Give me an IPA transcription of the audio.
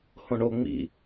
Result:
h õ ɳ o ŋ͡m ḭ

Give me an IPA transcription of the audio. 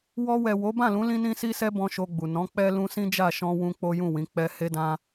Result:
w ɔ˧ w ɛ˨ w o˨˦ b ã˦˨ l ũ˨˦ l ĩ˦ n ĩ˦ s i˦ s ɛ˦ b ɔ̃˦ ʃ o˧ ɡ͡b u˨ n ɔ̃˨˦ k͡p ɛ˦ l ũ˧ s ĩ˦ d͡ʒ a˦˨ ʃ ɔ̃˧ w ũ˧ k͡p o˦ j ũ˦˨ w ĩ˨˦ k͡p ɛ˦ h e˦ d ã˦

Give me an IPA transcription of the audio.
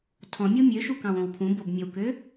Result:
tʰ ɔ̃ mʲ o mʲ ø ʃ u k ɑ̃ w õ w pʰ ũ b o b mʲ ə w k ø

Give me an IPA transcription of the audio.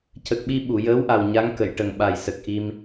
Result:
c ə˨˩ k̚ ɓ i˧ ɓ u˨˩˨ j əː˧˥ w ʔ a˨˩ w ɲ a˧˥ ŋ k ə˨˩˨ j ʈ ə˨˩ ŋ ɓ a˨˩ j s ə˨˩ k̚ ʔ i˧ m

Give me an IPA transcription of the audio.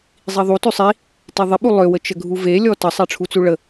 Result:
zˤ i ðˤ u t ʉ sˤ i | t i ðˤ ɪ ɓ u lˠ ø w ə t͡ʃ ə ɡʱ u v e lʲ ɔ t ə sˤ e ʈ͡ʂʰ u t͡s u ɭ ə

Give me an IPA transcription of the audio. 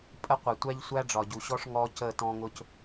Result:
pʼ ə˦ qʷ ɛ˨ tʷ æ˦ ʎ sʷ æ˦ ɖ͡ʐ ɒ˨ ɟ u˨ ɕ ɔ˦ ʂ ŋ ɔ˦ c ə˦˨ t ɔ̃˦ ŋ ʊ˦ c

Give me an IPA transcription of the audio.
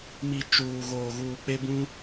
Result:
m i˨ t͡ʃ uː˨ ɣ oː˨ ɣ uː˨ k͡p e˦ b ũ˦

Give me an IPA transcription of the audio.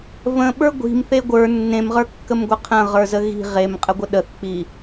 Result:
v ə̃ ɓ ə˞ ɡʷ i̤ m θ e ɡʷ ə˞ nː ẽ m ʁ ə˞ kː ə m ɡʷ ə qʰ ə̃ ʁ ə˞ z ə ɣ i̤ ʁ e m qʼ ə ɡʷ ə ɗ ə θ k͡p i

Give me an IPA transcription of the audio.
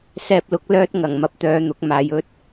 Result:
s ɛː˧ p̚ l ʊ˨˥ k̚ l œː˥ t̚ ŋ ɐ˨˩ ŋ m ɐ˨ p̚ t̪ œː˨ n̪ ʊ˨˥ k̚ m aː˨ j ɵ˥ t̚

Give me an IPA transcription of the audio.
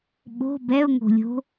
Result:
ɓ o̤ b ɛ ʊ̯ ŋ o̤ lʲ o̤

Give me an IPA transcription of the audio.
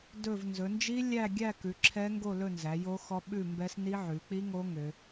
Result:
d ɵ˥˧ v n z ɵ˨˦ n d͡ʒ i˦˥ lʲ æ˥˧ ɡʲ æ˥˧ k ʉ˨˦ ǁʰ ɛ˦˥ ŋ ɡ o˥˧ l ɵ˥˧ n z æ˨˦ j o˦˥ x ɔ˦˥ ɓ ʉ˥˧ m b ɛ˦˥ s n i˦˥ ʕ ʉ˨˦ k͡p i˦˥ ŋ o˦˥ ŋ ø˦˥

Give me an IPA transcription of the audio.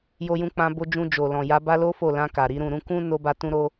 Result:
j o˧ j ũ˧ k͡p ã˧ b o˧ d͡ʒ ũ˧ d͡ʒ o˨ l ɔ̃˨ j a˨˦ b a˦ l o˦ f o˦˨ l ã˧ k a˨ ɾ i˨˦ ɾ ũ˦˨ ɾ ũ˧ k ũ˦ n o˦ b a˦ t ũ˦ ɾ o˧

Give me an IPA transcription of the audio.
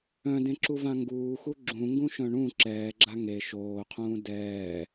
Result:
œ̃ d ẽ ǁ u v ã ŋ ɡ uː x u ɡ͡ǁ ũ ŋ ɡ ũ ʃ œ̃ ɳ ũ ǁ ɛː ɡ͡ǁ a ŋ e ʃ oː qʰ ũː d ɛː

